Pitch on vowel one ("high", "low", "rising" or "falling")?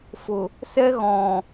low